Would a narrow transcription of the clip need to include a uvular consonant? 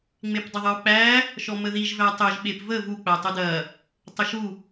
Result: no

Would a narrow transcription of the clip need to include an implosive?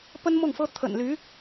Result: no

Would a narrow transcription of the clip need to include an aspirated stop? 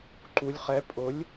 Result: no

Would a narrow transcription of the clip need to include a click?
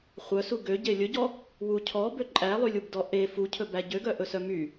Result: yes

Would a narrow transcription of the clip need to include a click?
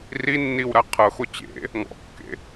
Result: no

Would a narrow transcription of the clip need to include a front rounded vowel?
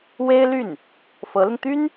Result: yes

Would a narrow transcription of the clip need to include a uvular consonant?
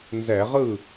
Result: yes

